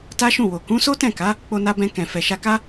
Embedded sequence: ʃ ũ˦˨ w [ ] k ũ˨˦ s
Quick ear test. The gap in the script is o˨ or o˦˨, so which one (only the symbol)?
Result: o˨